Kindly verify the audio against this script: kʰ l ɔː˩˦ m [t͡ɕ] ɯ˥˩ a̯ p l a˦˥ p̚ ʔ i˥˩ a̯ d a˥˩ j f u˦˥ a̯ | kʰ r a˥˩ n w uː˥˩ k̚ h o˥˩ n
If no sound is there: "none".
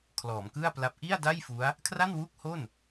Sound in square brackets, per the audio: k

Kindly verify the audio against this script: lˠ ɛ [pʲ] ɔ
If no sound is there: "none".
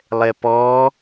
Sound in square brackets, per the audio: p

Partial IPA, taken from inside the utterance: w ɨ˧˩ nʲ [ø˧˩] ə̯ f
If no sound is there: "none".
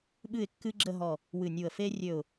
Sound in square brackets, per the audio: u˧˩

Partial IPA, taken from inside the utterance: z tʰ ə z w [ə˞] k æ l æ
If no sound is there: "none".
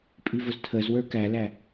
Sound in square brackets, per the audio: ə˞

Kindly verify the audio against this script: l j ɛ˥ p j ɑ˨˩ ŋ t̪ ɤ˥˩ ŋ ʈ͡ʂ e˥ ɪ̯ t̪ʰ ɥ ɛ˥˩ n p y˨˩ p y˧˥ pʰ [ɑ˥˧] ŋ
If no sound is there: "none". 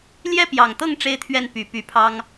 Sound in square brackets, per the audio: ɑ˥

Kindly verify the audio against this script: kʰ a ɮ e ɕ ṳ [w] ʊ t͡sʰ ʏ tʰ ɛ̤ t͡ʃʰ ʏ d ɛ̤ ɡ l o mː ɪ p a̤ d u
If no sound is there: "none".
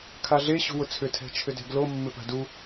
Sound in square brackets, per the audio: w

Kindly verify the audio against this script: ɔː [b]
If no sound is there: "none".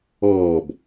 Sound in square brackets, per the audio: b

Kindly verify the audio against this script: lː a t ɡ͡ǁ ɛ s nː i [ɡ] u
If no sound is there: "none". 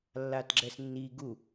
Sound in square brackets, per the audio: ɡ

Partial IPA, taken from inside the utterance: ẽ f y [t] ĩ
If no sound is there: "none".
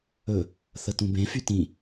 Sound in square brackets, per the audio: t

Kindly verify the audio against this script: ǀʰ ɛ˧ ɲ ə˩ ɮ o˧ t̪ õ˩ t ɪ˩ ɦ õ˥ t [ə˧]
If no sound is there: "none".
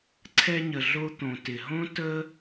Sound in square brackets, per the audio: ə˥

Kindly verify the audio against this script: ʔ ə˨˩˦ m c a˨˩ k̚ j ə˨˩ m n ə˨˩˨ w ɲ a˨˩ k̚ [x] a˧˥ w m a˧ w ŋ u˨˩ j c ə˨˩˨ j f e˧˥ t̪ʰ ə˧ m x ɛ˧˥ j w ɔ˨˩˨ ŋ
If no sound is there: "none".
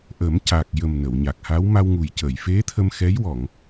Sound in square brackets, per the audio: h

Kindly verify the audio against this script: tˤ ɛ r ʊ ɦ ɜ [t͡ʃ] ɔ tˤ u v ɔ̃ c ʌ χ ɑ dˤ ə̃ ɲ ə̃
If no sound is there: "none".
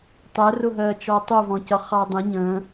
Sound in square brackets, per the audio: t͡ʃ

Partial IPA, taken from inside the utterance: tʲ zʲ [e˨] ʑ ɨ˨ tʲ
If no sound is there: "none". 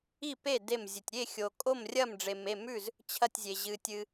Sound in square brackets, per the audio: e˨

